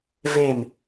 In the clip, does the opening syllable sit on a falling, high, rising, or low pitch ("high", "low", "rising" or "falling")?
falling